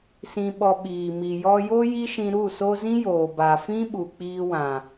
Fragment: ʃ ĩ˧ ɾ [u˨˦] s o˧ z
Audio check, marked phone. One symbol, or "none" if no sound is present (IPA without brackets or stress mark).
u˦˨